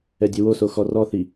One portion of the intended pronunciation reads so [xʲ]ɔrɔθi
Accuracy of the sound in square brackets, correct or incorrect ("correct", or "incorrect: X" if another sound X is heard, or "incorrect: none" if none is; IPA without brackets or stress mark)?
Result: incorrect: x